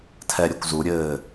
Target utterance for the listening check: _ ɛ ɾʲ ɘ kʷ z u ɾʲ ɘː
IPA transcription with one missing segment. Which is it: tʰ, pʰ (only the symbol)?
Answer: tʰ